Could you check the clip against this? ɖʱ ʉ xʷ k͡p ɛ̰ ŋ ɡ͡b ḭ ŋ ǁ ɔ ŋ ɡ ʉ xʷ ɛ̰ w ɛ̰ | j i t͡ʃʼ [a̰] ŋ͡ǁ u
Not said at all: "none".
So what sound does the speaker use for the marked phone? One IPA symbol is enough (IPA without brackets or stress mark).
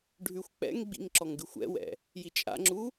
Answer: a̰